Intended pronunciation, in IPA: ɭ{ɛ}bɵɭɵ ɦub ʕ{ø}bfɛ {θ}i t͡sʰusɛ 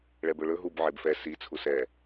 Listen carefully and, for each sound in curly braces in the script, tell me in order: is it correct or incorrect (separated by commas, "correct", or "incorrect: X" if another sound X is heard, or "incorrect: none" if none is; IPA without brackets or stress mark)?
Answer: correct, incorrect: e, incorrect: s